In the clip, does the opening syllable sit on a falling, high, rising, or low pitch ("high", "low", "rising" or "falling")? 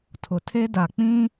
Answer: low